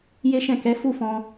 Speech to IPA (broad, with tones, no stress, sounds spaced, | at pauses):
j e˦ ʃ ɛ̃˦˨ k ɛ˨˦ f u˦˨ f ɔ̃˧